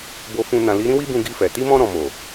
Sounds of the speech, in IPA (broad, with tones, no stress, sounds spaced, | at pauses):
b o˧ f ũ˧ n ã˨ l i˨˦ ɾ ĩ˦ w i˦ b ũ˧ ɡ i˧ f ɛ˨ t i˧ m ɔ̃˧ ɾ ɔ̃˨ m o˨